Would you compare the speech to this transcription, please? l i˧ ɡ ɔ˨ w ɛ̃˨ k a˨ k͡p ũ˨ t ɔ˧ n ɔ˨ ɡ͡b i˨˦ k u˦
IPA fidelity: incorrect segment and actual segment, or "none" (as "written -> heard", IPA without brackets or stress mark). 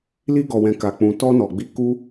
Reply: none